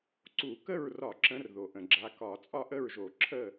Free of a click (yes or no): no